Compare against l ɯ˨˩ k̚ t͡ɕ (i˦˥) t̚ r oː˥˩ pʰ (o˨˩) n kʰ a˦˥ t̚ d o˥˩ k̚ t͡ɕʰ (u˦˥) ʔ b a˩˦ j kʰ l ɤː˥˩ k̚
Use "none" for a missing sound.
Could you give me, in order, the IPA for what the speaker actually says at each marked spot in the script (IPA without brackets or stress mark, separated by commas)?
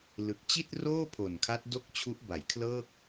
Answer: i˥˩, o˨˩, u˦˥